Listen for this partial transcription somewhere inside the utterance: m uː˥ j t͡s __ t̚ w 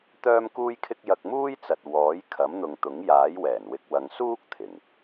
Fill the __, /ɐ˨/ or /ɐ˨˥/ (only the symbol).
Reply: ɐ˨